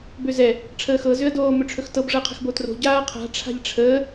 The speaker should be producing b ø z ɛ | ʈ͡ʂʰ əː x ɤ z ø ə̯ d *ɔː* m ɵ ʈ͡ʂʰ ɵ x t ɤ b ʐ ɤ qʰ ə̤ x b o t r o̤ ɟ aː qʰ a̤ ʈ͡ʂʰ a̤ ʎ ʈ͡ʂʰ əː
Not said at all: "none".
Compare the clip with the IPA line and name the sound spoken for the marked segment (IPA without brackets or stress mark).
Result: oː